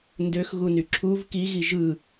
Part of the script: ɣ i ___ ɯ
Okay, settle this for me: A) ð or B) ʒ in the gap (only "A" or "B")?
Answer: B